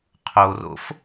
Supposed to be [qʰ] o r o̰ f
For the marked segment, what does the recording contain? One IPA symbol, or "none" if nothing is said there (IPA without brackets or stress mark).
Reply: qʰ